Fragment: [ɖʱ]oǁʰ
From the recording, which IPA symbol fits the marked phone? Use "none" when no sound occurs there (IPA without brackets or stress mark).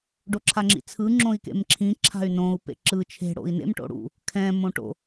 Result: ɖ